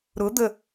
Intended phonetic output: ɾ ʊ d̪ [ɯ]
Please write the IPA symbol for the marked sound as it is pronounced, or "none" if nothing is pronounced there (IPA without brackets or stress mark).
ə